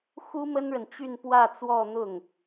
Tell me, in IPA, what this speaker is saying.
xu˥mə˥nɻə˨nt͡ɕy˥˧n pwä˥˧t͡swɔ˥˧n̪ʊ˥˩ŋ

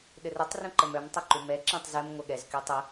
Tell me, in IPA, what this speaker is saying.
ɗɘrətˤ rũǃəmœm tˤœǃumɛ ǁɛ̃tˤzɛm ŋʷɛɠɛz kytˤə

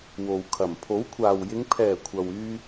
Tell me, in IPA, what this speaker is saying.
wo˨w kʰɐ˨˩m pʰo˨˥wkʷʰaː˨˩wjɪ˨˧ŋ pʰɛː˨˩ kʷʰɐ˨wyː˧

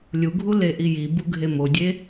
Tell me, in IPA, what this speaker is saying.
lʲuɡʱu leʔiji buɡʱemodʲe

